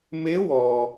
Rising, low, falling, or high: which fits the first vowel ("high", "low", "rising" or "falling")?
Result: rising